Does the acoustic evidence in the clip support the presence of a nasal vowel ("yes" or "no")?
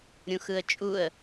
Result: yes